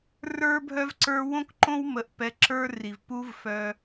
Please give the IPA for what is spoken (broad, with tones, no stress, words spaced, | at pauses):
rə˞˦bʱœ˦vǀə˞˦ wõ˦kǃõ˦w mə˧ʔ pɛ˧ǁə˞˦ri˨v pu˦vfœ˧